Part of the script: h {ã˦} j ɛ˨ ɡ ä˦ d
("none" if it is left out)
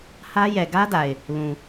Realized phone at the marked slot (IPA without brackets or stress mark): ä˦